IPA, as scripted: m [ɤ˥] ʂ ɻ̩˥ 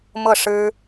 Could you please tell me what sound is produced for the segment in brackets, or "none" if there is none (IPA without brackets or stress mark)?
ɤ˥˩